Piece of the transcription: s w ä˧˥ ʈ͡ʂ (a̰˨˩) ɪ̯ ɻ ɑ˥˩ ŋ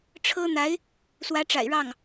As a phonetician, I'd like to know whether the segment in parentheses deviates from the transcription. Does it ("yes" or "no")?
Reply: no